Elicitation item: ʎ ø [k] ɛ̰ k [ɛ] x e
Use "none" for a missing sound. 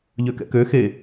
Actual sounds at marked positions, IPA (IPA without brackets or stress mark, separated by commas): k, ø